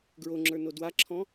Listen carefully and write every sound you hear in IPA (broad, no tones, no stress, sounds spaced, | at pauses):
ɡ ɹ o ŋ͡ǁ ə˞ n o d w a ǁʰ ɔ̃